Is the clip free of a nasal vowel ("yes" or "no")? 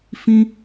no